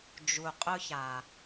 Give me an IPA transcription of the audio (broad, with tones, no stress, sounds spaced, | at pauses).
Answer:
d͡ʒ u˨ qʼ ʊ˦ ç a˨